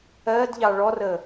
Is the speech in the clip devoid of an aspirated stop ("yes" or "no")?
yes